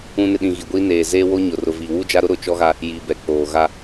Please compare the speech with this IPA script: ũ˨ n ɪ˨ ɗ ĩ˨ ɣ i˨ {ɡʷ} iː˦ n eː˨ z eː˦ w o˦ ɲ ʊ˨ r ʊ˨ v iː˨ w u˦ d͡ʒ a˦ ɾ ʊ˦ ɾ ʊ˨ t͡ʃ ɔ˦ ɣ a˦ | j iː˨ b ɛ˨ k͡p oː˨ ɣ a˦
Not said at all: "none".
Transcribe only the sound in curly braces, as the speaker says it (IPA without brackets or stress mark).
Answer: ɡʷ